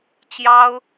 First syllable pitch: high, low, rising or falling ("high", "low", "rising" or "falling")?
high